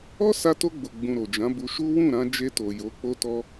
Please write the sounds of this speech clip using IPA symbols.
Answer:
ɔ˦ sa˧to˧ɡ͡bo˨ɡ͡bũ˨ ɾo˨d͡ʒã˨˦bu˧ʃu˦ wũ˦˨ɾã˧ d͡ʒe˧to˨ jo˨˦k͡po˦tɔ˦

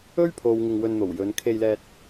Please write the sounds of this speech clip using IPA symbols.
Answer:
ɵ˥ɥpʰo˨w ŋɪ˧ŋwɵ˧nn̪o˨˩w jɵ˨˧n kʰe˧jlɛː˧t̚

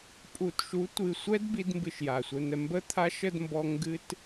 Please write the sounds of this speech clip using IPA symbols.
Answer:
pʼu˨˩tʃu˩˥ tʷɨ˨˩ sʷɛ˦˥dbi˧d mbɨ˧ʃja˨˩sʷɛ˧n̪ɛ˧ mbə˦˥t̪ʰa˦˥ʃə˥˧dmbɔ˧ ŋɡɨ˦˥t

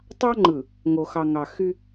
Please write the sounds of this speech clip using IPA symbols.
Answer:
tˤɑ˦ŋ͡ǃɯ˨ | ŋo˨xɑ˨ŋɑ˨xy˦

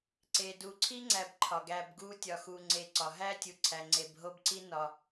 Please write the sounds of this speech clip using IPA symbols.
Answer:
ǀe˩ du˨ǀʰi˥ŋ͡ǀæ˨bǃʰɒ˩ ɡæ˨bɡu˦ tʲɒ˨xu˨ ŋ͡ǀe˨ǀɒ˩ ɦæ˥tʲu˨ ǀʰæ˨ŋ͡ǀe˨bɦo˥bǀi˥ nɒ˨

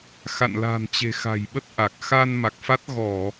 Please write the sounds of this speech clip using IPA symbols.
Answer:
xa̰˧˨nla̤˨˩nt͡ɕe̤˨˩ xa̤˨˩jɓə˦˥t̚ʔa˨˩k̚ xa˧n ma˨˩k̚fa˦˥t̚ɣɔ˧˩˨

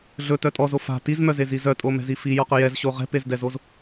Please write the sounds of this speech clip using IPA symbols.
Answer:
ɮɵtœ tʼɔzo fa̤ tizmœzezi zœtʼomɛ̤zi fijɔqʊ jɛzɕo ʁɛ̤pezdɛzoz

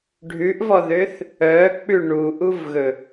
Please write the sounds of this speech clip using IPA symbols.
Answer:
ɖʱʉʔvɔðøθ | œk͡pʉ ɳuʔuvɣɵ

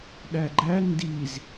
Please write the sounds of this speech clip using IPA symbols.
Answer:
ɗæɡ͡ǃæ ndiz

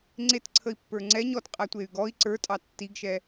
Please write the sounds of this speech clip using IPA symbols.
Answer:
ŋ͡ǀetǀʰəi̯pːə˞ ŋ͡ǀɛɲ ɔtqʼætʷey̯ ɡɔi̯ ǀə˞tʼɑ tːiɡʃɛ

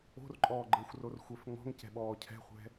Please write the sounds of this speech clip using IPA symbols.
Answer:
o̤rǃʼɔːɡ͡ǃɘːxʷror xʷɛfŋ͡mɔ̤ŋcɛ̤ɓɔː cʰɛ̤χʷɛ̤

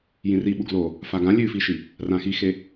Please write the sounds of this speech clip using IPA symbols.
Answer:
jĩriɓuɡ lo | faɡã lʲʉfiʃi | rãxixe

